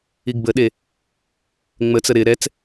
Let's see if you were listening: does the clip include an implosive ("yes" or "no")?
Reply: yes